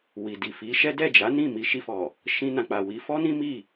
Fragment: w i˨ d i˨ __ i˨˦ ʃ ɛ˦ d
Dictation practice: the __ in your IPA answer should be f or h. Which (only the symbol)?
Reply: f